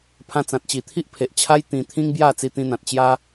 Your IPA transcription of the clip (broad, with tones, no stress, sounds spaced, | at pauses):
pʰ ã˧ t͡s ã˨ t̚ t͡ɕ i˨˩ t̪ʰ i˦ ʔ pʰ e˨ ʔ t͡ɕʰ a˦ j t̪ ĩ˧ t̪ʰ ĩ˦ ŋ b j a˥˧ t͡s i˧ t̪ ĩ˧ n̪ ã˨ t̚ t͡ɕ j a˦